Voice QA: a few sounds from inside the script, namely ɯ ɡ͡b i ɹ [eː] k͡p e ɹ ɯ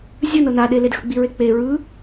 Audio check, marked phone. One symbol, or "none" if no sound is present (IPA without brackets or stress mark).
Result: e